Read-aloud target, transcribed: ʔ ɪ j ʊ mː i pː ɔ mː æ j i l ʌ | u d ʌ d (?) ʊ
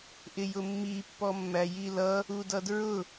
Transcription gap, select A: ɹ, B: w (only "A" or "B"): A